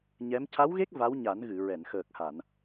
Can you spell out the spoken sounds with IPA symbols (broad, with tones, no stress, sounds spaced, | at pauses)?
ɲ ɛ˧˥ m c a˧˥ w ɣ e˦˥ k̚ v a˧˥ w ɲ a˨˩˦ n ɣ ɨ˨˩˨ ɹ ɛ˨˩˨ n x əː˨˩ k̚ h a˨˩˨ n